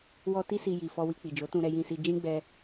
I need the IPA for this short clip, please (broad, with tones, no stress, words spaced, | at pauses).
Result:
wɔ˧ ti˦si˧ ji˨fɔ˧wi˧k͡pi˨ d͡ʒo˨˦tũ˧ɾɛ˧jĩ˧ si˧d͡ʒĩ˦ ɡ͡bɛ˧